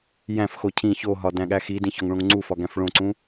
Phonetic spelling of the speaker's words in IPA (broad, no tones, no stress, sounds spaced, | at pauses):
j æ̃ f x o cʰ ĩ ç o ɦ ɒ d æ̃ ɠ æ x i d ĩ ç ɒ ŋ ɭ õ ŋ ŋ͡ǀ u f ɒ ɡ æ̃ f ɭ õ ǀ ũ